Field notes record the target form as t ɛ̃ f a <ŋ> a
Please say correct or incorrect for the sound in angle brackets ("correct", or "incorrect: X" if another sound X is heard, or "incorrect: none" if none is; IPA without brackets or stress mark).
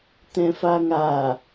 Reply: correct